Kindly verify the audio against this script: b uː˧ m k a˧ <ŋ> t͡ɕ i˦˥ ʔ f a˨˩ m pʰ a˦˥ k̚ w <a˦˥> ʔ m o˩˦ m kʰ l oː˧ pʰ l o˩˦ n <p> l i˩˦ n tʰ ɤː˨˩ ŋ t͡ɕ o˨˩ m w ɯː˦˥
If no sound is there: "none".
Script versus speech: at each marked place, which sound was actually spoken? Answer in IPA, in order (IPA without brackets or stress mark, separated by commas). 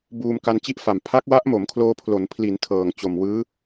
n, a˦˥, pʰ